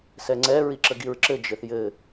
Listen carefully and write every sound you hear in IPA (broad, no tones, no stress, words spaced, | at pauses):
sɛŋ͡ǀɛ ɹiǁəɡiɹǁɘ d͡ʒɘθjɘ